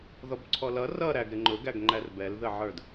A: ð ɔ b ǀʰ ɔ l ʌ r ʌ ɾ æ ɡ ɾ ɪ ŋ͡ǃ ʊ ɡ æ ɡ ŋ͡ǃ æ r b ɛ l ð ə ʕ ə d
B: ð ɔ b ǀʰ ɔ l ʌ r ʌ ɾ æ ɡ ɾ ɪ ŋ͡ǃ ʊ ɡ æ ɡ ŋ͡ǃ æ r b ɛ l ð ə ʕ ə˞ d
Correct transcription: B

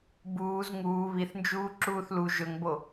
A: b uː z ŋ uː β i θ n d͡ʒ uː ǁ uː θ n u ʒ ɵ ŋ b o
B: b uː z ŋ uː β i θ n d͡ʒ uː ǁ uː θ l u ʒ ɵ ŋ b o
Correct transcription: B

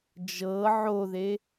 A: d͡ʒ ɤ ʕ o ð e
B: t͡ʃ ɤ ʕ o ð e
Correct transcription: A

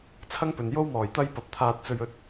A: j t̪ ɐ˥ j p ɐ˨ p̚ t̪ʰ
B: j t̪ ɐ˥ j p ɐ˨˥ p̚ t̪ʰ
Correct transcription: B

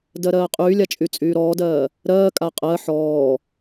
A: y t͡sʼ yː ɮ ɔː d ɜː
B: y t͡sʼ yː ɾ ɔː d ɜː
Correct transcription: B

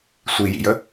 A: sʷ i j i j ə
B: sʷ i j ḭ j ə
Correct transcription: B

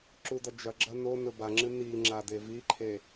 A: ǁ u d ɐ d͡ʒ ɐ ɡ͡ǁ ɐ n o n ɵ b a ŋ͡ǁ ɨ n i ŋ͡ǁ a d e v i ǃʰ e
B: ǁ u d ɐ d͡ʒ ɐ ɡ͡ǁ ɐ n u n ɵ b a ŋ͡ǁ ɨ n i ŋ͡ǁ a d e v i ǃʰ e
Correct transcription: A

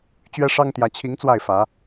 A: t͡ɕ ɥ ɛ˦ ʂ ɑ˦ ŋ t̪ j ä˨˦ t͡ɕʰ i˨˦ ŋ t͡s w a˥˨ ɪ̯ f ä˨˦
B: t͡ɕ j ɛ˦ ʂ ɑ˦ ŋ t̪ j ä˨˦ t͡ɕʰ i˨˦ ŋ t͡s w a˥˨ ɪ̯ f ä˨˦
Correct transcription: A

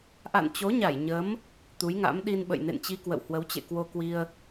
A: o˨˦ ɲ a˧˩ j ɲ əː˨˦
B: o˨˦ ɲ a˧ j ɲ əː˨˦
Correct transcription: A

